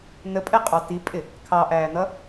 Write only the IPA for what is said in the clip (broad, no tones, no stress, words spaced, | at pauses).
nəpʼɛqʼɑ tipʼɪ | kʰɑʔæːn̪ʌ